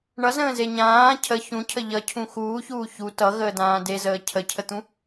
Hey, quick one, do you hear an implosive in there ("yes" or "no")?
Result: no